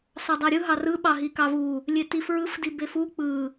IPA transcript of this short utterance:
s ɑ dˤ æ ɾʲ ɯ ɦ ɑ r ɯ ɓ ɑ ɦ i k ɑ v u | lʲ e t i f ɹ ɯ f d i b e f u k͡p ɯ

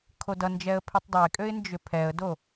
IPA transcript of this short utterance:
kʰ o d ʌ n d͡ʒ ɛ ə̯ pʰ i tˤ dˤ ø ɪ̯ kʼ ø ɪ̯ n d͡ʒ ʏ pʰ ɛ ə̯ d o

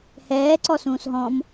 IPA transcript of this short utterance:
h ɛː ǀ ɔ s ũː s ɦ ɔ̃ m

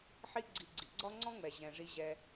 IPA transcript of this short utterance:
ħ i˦ ɡ͡ǀ i˨ ɡ͡ǀ i˩ ɡ͡ǀ ɒ˦ ŋ͡ǀ ɔ̃˦ ŋ͡m ɛ˩ ʑ ɛ̃˩ ʐ i˨ ʑ ɛ˨

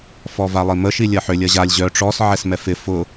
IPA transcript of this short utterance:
f ɔ v a lˠ i m ə ʃ i lʲ ɐ ħ ʏ lʲ ɐ ʑ a lʲ ʑ œ ʈ͡ʂ ɔ s ʕ ɛ s m ɛ f ɪ f ʊ

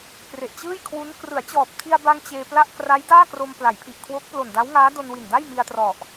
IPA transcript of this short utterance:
k r e˨˩ ʔ t͡ɕ ɯː˥˩ j kʰ w u˦˥ n k r ɯ˩˦ a̯ t͡ɕ ɔː˨˩ p̚ tʰ i˧ a̯ b a˧ ŋ t͡ɕ eː˧ p l a˥˩ ʔ k r a˦˥ j d aː˥˩ k r o˧ m p l a˩˦ j pʰ i˨˩ ʔ kʰ w o˦˥ k̚ p l o˨˩ n d a˦˥ w ŋ aː˦˥ d o˧ n w i˨˩ n d a˥˩ j m i˧ a̯ t r ɔ˨˩ ʔ

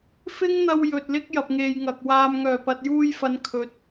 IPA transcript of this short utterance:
f ɪ˥ ŋ n̪ ɐ˧ w j ɵ˨ t̚ l ɪ˥ k̚ j ɐ˨ p̚ ŋ e˨ j ŋ ɐ˨ k̚ w aː˧ m ŋ œː˨˩ p ɐ˨ t̚ j uː˧ j f ɐ˨˧ n kʰ ɵ˨˥ t̚

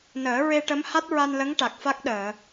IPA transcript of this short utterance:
n əː˨˩˦ ɹ e˧ ʈ ə˧˥ m h a˦˥ t̚ ɹ a˧ n l ə˧˥ ŋ ʈ a˨˩ k̚ f a˦˥ k̚ ɗ əː˨˩˨

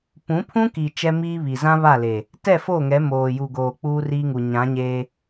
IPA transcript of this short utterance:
p ũ˨˦ pʰ ũ˦ k i˨ t͡ʃ ɛ˦ m iː˦ β i˨ z ã˦ β a˦˨ l e˨ | t ɛ˦˨ f o˦˨ ŋ ɛ˨˦ m oː˨ j u˨ ɡ oː˨ k͡p uː˦ r iː˦ ŋ u˨ ɲ ã˨˦ ɲ eː˦

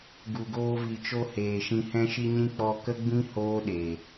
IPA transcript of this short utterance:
ɡ u˨ ɡ oː˧ v i˨ t͡ʃ o˧ h eː˨ ʃ ĩ˧ h ɛ̃˧ ʃ i˧ ɲ ĩ˧ k͡p ɔ˧ k ə˦ ɡ͡b ĩ˦ h oː˦ ɗ e˨

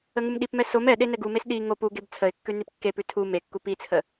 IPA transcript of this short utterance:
ə ŋ u m ɗ i p m ɛ s o m ɛ ɗ e n ɛ ɡ u m e s ɗ i ŋ o p u ɡ e b t͡sʰ ə ɪ̯ kː ʉ n i p kː e p ʉ tʰ u m e kː u p i t͡sʰ ə

